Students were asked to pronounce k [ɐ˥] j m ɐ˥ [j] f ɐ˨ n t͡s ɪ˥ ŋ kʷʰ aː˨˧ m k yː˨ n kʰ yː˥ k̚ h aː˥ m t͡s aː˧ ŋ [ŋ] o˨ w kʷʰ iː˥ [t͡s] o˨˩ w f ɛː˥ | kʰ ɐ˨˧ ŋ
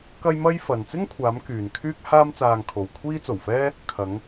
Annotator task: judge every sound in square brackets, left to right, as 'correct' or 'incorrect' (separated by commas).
correct, correct, incorrect, correct